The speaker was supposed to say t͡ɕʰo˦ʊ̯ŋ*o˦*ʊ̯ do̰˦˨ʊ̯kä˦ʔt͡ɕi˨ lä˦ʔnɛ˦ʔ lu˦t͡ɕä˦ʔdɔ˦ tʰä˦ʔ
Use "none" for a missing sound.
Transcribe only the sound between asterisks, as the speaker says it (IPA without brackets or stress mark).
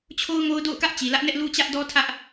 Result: o˦